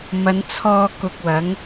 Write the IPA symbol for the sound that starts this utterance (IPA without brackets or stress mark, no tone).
m